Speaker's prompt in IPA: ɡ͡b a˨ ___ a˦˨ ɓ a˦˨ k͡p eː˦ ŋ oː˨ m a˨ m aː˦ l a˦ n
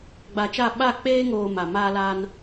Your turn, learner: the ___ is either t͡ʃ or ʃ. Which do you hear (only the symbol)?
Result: t͡ʃ